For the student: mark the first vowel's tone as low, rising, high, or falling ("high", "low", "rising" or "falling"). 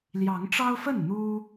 rising